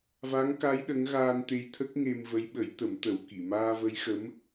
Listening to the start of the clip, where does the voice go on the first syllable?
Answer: rising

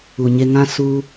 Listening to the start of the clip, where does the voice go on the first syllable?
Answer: low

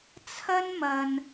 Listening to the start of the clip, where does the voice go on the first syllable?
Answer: high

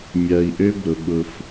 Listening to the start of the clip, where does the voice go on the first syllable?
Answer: low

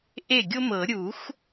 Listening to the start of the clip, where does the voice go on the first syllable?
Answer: falling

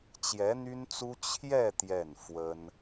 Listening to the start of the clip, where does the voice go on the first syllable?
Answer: rising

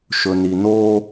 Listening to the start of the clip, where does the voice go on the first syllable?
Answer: low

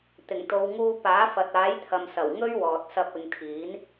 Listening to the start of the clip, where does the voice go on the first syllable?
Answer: low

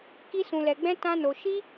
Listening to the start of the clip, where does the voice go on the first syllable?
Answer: high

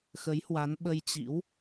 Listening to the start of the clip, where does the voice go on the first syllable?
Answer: rising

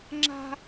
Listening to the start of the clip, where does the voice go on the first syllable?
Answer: high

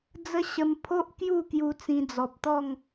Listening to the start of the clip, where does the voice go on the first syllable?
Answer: high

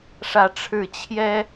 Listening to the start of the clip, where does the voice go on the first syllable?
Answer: falling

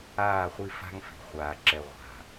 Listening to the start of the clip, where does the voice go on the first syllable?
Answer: falling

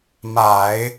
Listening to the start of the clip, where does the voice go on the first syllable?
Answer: low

